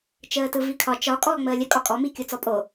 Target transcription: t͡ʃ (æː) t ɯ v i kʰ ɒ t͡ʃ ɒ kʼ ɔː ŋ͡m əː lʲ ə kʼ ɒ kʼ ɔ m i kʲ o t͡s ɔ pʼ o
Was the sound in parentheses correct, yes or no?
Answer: no